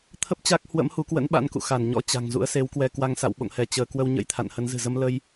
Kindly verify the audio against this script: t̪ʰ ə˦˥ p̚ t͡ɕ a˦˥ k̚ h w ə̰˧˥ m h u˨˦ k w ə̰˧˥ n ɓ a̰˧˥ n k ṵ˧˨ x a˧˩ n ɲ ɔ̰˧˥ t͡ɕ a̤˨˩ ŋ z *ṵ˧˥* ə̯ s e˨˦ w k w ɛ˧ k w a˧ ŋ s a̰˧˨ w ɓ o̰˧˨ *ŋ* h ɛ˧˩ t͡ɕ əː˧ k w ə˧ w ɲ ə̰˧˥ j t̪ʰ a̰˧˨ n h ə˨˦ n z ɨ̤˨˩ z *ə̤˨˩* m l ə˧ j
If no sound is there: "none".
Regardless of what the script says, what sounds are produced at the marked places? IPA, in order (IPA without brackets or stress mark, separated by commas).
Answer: ṵ˧˥, ŋ, ə˧